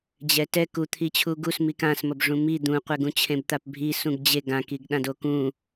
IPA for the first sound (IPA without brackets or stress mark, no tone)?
d͡ʑ